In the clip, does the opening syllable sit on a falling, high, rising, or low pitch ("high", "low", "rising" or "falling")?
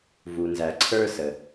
low